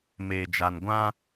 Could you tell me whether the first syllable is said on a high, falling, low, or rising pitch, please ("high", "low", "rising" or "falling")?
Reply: low